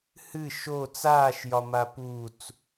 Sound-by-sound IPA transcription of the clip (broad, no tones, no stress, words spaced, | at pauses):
hɨ ʃo t͡saːʃjɒ maput͡s